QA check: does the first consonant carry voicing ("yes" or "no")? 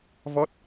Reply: yes